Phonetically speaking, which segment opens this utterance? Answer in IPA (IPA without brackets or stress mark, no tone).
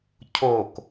cʰ